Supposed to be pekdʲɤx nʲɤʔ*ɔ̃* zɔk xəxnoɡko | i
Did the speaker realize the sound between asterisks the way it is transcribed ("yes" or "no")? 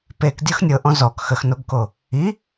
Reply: yes